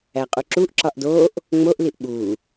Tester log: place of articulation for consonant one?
uvular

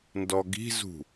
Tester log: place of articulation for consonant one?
alveolar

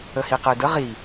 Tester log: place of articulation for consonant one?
glottal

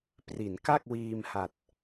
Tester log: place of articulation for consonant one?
labial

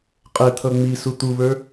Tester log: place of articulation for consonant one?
uvular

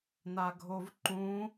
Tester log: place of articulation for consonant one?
alveolar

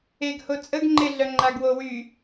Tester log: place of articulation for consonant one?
velar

